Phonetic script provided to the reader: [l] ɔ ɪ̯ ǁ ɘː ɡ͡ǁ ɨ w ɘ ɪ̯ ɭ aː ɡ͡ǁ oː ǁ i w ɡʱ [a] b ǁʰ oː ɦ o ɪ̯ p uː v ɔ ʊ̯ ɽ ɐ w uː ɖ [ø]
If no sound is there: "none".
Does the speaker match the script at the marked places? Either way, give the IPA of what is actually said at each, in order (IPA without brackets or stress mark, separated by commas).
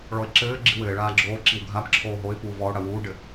ɭ, a, ɘ